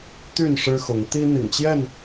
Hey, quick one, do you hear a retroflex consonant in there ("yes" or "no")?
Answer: yes